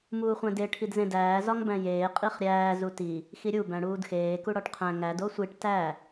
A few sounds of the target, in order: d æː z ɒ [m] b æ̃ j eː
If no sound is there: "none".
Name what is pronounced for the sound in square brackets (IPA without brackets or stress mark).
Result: ŋ